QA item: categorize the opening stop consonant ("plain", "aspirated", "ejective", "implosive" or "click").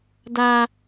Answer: plain